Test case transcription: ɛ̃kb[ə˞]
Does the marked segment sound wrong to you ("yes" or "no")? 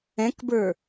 no